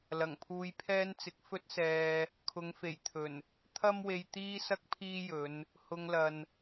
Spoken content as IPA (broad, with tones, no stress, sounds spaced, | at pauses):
l ɐ˨˩ ŋ pʰ uː˧ j pʰ ɛː˥ n t͡s ɪ˧ k̚ f ɵ˥ t̚ s ɛː˧ | kʰ ʊ˨˧ ŋ f e˨˩ j t̪ʰ ɵ˨˩ n | t̪ʰ ɐ˥ m w e˧ j t̪ iː˥ s ɐ˥ k̚ pʰ iː˥ j ɵ˨˧ n | h ʊ˧ ŋ l ɐ˨ n